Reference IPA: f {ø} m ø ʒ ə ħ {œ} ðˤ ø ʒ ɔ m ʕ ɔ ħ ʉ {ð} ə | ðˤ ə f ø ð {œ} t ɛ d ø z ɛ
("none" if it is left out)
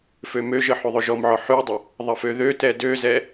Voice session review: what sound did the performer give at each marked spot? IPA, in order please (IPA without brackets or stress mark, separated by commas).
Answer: ø, ø, dˤ, ø